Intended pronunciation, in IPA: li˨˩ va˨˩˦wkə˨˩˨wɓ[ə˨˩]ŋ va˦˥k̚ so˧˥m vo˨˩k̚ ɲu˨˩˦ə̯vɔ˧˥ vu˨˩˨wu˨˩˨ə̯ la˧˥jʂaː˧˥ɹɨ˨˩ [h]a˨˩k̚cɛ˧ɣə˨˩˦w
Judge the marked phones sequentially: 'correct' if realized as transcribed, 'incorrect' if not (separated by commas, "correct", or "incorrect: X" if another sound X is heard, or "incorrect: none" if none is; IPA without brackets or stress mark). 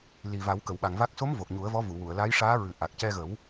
incorrect: a˨˩, incorrect: ʔ